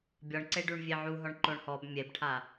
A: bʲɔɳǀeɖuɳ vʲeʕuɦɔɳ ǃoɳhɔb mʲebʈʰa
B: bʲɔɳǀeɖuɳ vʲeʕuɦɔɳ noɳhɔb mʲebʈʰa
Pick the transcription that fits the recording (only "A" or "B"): A